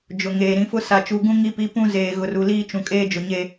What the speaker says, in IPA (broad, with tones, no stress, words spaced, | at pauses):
d͡ʒʊ˨ŋeː˨ ɾĩ˨fʊ˦ sa˨t͡ʃu˨ɡũ˦ ŋi˦pi˦pũ˦ zeː˨ɣʊ˨ru˨ liː˦ t͡ʃũ˨kʼeː˦d͡ʒʊ˨ɲe˦